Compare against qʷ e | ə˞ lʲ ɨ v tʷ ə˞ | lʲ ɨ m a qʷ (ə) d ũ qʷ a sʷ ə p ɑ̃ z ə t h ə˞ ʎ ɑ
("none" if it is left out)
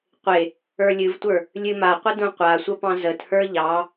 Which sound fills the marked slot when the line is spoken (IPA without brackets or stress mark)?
ə